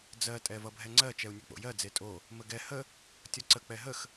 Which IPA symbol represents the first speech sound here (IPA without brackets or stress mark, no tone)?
d͡z